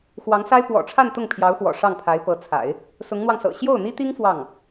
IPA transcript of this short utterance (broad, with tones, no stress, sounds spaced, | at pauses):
x w ɑ˧˥ ŋ s a˥ ɪ̯ p w ɔ̰˨˩ ʈ͡ʂʰ a˥˧ n t̪ ʊ˥˩ ŋ pʰ j ɑ˧˥ ʊ̯ x w ɔ̰˨˩ ʂ ɑ˥˩ ŋ pʰ a˧˥ ɪ̯ p ɤ˧˥ t͡sʰ a̰˨˩˦ ɪ̯ | s ʊ˧˥ ŋ n̪ w ɑ˧ ŋ s ɤ̰˨˩ ɕ j o˥˩ ʊ̯ n̪ i˥ t̪ i˥ ŋ f w ɑ˥˩ ŋ